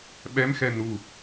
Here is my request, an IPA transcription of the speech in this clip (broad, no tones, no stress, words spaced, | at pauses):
ɓɛmxɛ nu